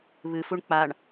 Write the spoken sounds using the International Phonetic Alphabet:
β ɨ f u ɳ k͡p a ɳ

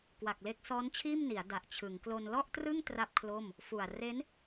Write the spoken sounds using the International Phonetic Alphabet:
k w a˨˩ k̚ l e˦˥ k̚ s ɔː˦˥ n t͡ɕʰ iː˥˩ m n i˩˦ a̯ d a˨˩ ʔ t͡ɕʰ ɯ˩˦ ŋ k l o˧ n l ɔ˥˩ ʔ t r ɯ˥˩ ŋ t r a˥˩ p̚ kʰ l o˥˩ m | f u˨˩ a̯ r e˦˥ n

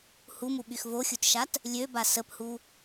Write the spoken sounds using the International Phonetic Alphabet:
h u m u ɓ y x v o xʲ u t ʃ a t | lʲ ø b a s ə p h u

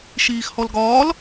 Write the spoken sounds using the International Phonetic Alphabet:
ʃ iː x h ɔ l ɡ ɒː l

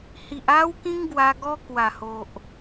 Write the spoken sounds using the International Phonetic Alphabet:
h i˨ ʔ a˦ w k ĩ˦ ŋ ɡ w a˧ ɡ ɔ˦ k w a˨˩ h o˨ ʔ

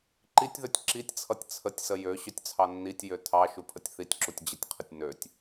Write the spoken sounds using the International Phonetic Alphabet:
ǃ i tʲ ð ø tʲ ǁ i tʲ t͡sʰ ʌ tʲ t͡sʰ ə tʲ s ə j ø ɕ ø tʲ t͡sʰ ɑ nː i tʲ j ø tʰ ɑ ʃ u pʰ ə tʲ θ i tʲ ǁ u tʲ d͡ʑ ə tʲ qʰ ə tʲ n ø tʲ

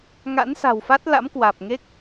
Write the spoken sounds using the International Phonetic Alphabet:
ŋ a̰˧˥ n s a̤˨˩ w f a˦˥ t̚ l a̰˧˥ m k w aː˨˩ p̚ ŋ e˦˥ k̚

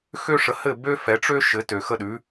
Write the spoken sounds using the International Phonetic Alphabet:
x ø˥ ʂ ə˩˥ h ɘ˥˩ b ø˥ f ɛ˩˥ ʈ͡ʂ ø˥ ʃ ɘ˩˥ t ø˩ x ə˥˩ ɗ ʉ˩˥

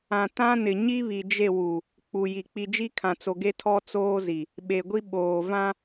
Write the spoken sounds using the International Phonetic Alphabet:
ã˨ t ã˦ n ɪ˨ ɲ i˦ β i˨ d͡ʒ e˦˨ w u˨ | k͡p u˨ j i˨ k͡p i˨ d͡ʒ i˦ kʰ ã˨ t͡s o˨ ɡ e˦ tʰ ɔ˦ t͡s oː˦ z i˨ | ɓ e˨ ɡʷ i˦ ɓ oː˨ v ã˦

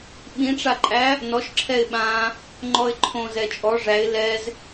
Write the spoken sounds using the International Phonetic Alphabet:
ɓ ĩ ʈ͡ʂ a ǃʼ æ | n ɔ ʃ ǁʰ ɛ ɪ̯ ɓ ã | ŋ͡ǃ ɔ ɪ̯ ǃʰ õ z ɛ t͡ʃʼ ɔ ʐ æ ɪ̯ l ɛ z

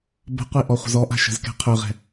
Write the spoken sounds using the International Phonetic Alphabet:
b ə̤ qʷ i ʔ ɔ χʷ ə̤ z ɔ ʔ a̤ ʃ ə̤ z k ɛ̤ qʰ ø ʁ ɛ̤

